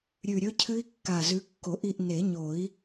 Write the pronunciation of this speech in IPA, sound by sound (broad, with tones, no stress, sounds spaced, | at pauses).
ɾʲ ʉ˨˩ ɾʲ ɵ˦˥ cʰ ɨ˦˥ i̯ kː a˨˩ z ʉ˨˦ kː o˨˩˦ ʔ i˥˨ ʔ n e˨˩˦ ɲ o˨˩˦ i̯